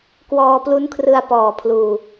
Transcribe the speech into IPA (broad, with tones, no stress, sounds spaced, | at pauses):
k w ɔː˧ p l u˦˥ n kʰ r ɯ˧ a̯ p ɔː˨˩ pʰ l uː˨˩